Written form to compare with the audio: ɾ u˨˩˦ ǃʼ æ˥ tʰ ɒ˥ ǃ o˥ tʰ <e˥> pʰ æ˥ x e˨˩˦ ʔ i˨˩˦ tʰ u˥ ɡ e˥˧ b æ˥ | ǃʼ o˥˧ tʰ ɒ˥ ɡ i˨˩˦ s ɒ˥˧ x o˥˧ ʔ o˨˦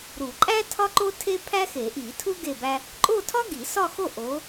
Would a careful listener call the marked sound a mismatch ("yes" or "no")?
no